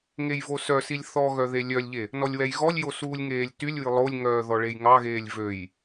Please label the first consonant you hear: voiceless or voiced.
voiced